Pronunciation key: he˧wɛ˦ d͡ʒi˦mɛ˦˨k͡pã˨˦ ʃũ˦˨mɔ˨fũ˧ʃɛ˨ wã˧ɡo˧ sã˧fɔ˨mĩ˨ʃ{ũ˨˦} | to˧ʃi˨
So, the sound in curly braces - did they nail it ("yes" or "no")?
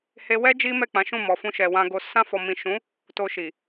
yes